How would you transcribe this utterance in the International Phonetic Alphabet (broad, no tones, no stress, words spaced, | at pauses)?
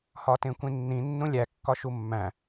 hɒtẽkʷĩnːĩ nːũlʲæ kːɒʃumːæ̃